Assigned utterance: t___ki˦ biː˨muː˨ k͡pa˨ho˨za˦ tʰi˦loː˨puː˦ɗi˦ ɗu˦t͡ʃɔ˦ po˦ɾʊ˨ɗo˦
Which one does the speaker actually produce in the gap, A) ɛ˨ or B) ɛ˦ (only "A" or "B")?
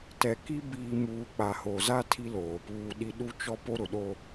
A